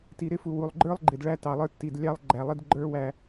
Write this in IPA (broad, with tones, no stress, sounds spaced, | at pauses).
t i˨ ɾ ɪ˦ f u˨ w u˨ lˠ ɡ͡ǃ ə˞˦ lˠ ɡ͡ǃ ɪ˨ d ɭ æ˦ t ɑ˨ lˠ ə˞˦ tː i˨ d lʲ ɑ˦ lˠ ɡ͡ǃ æ˨ lˠ ɪ˦ d ɡ͡ǃ ə˞˦ w æ˦